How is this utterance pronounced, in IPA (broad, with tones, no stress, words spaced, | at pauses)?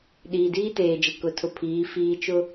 ɗiː˨diː˦teː˨d͡ʒɪ˨ kʊ˨tʰʊ˨pʰiː˨˦ fiː˦ t͡ʃʊ˦